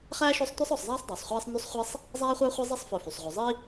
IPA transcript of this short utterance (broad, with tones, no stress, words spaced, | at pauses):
χæː˥ʃɵ˦sˤ tʷɛ˥sˤɔ˨sˤzˤæː˥sˤ dˤæ˩sˤχʷæː˦sˤnʉ˦sˤ χʷɛ˥sˤ | zˤæː˥χʷæ˥χʷi˦ zˤi˦sˤfœ˨fy˩sˤʁʷœ˨ zˤi˥